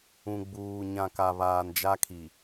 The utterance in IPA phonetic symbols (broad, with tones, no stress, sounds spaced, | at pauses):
ũ˨ ɡ͡b uː˨ ɲ ã˨ k a˨ β aː˨ n d͡ʒ a˦ kʰ i˨